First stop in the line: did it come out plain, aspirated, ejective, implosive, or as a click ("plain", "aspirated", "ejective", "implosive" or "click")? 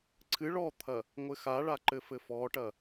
click